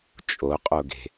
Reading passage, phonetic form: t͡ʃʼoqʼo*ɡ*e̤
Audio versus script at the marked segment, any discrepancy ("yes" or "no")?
no